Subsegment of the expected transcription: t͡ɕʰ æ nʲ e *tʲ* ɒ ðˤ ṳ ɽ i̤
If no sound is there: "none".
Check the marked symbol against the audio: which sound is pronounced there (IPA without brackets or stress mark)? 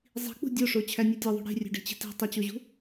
tʲ